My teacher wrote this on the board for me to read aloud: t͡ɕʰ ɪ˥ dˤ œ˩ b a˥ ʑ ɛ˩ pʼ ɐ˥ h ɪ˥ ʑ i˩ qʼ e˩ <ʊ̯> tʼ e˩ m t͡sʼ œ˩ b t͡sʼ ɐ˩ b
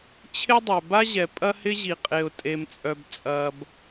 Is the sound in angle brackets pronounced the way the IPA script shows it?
yes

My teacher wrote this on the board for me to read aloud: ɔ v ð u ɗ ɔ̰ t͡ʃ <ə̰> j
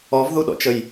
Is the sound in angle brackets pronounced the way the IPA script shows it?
no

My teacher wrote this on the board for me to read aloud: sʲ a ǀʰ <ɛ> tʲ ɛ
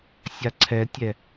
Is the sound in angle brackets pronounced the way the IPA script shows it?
yes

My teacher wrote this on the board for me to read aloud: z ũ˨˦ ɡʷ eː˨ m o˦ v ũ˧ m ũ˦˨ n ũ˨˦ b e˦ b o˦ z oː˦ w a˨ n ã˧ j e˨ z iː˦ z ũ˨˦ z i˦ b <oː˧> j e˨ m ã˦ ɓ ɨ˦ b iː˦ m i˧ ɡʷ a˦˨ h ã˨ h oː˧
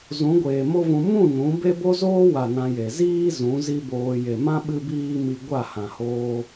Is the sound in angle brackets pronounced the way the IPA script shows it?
yes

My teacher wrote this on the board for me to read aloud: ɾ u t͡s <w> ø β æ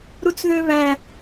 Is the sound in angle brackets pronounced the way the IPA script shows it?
no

